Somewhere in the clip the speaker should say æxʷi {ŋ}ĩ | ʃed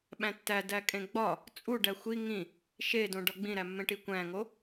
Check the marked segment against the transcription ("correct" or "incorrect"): correct